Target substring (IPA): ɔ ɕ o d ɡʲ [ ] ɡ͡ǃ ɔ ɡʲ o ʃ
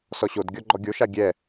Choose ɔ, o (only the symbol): ɔ